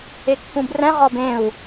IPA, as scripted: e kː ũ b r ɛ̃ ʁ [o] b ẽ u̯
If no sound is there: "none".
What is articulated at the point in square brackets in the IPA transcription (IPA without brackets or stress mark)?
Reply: ɔ